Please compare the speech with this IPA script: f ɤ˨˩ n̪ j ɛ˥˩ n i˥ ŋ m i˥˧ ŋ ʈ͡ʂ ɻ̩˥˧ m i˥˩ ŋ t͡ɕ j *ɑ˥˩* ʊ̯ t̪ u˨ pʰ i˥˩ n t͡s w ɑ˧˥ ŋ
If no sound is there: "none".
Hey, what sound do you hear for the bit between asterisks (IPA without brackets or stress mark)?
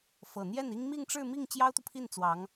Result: ɑ˥